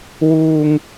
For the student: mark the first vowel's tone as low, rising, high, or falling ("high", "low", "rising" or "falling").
high